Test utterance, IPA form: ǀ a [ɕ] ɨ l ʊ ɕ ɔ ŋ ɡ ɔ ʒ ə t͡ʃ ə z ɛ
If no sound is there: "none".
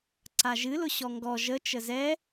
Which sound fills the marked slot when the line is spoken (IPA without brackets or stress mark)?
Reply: ʒ